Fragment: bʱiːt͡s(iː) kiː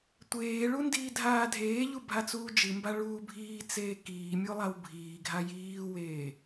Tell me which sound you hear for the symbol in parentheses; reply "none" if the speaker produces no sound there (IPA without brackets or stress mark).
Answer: eː